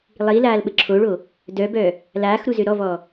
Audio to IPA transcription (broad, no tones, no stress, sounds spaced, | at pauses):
lˠ i l aː l ɓ ə ǁʰ o ɭ o | d œ b œ | l aː x ɾ u z ø ɾ ɔ v ɔ